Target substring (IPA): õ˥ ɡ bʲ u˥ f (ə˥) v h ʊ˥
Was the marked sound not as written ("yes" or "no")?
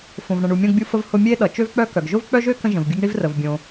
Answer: no